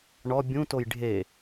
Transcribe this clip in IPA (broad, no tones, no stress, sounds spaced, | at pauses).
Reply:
ɳ ɔ bʲ ũ t o j ɖʱ e